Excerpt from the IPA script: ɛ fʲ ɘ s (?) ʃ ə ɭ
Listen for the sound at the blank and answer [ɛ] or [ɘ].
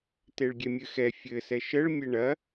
ɛ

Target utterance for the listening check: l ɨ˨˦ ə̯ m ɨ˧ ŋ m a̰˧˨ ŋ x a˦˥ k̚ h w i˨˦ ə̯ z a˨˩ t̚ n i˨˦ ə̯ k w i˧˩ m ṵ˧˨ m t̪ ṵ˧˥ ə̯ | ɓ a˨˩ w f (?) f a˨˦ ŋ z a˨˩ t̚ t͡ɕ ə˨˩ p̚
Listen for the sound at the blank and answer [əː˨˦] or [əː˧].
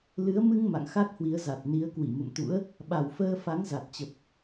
əː˧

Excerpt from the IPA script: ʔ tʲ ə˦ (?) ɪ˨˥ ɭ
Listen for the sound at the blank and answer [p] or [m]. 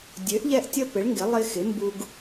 p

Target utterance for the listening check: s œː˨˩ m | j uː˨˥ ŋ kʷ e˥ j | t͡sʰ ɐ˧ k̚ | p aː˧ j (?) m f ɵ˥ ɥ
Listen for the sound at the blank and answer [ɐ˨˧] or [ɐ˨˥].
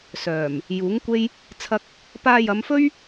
ɐ˨˧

